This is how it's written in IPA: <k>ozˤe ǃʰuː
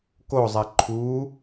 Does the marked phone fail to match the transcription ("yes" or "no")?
no